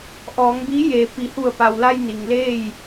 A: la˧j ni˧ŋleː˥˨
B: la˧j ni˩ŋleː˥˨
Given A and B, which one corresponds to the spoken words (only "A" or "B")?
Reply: B